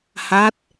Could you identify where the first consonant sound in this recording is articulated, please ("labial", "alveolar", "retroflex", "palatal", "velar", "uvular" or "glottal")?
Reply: glottal